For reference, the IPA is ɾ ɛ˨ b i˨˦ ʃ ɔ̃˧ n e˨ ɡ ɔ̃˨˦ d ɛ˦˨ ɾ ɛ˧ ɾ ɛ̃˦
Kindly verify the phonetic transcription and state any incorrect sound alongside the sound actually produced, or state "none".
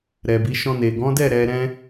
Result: none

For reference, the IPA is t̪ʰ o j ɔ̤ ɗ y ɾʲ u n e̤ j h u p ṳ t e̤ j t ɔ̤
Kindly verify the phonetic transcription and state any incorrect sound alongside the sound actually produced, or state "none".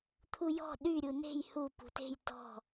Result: o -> u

